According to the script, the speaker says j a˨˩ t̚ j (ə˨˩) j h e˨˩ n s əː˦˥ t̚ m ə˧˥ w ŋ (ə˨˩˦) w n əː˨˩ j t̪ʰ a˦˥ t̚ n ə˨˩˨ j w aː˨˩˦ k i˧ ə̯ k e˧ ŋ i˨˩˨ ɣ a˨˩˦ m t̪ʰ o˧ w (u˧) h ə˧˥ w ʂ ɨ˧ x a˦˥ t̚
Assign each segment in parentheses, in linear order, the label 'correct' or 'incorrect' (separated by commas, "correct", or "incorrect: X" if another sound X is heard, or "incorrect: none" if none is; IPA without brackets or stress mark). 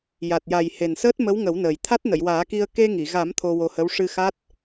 incorrect: a˨˩, correct, incorrect: o˧